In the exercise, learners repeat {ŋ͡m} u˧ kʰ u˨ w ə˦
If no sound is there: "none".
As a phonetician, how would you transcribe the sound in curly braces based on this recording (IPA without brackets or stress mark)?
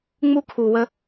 ŋ͡m